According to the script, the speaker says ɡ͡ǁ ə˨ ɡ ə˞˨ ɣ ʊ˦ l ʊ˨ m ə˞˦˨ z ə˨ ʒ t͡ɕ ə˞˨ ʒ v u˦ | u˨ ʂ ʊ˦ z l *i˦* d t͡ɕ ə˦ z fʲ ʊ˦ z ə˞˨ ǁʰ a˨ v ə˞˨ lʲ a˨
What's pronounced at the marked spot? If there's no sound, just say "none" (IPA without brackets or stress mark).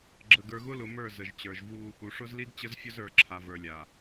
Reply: i˦